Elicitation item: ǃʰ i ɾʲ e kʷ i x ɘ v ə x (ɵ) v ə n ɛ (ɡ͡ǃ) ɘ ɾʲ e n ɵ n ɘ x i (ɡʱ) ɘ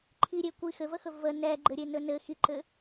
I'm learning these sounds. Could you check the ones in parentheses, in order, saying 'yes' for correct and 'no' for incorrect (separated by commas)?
yes, yes, no